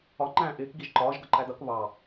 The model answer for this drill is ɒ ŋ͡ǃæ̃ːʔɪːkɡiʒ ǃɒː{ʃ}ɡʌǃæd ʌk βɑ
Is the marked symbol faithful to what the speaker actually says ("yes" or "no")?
no